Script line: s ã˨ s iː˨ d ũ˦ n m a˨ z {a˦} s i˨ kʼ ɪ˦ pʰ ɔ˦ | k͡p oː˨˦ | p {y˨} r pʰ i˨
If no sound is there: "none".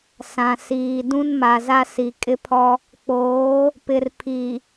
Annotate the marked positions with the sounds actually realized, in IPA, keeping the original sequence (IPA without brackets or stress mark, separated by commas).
a˦, ɪ˨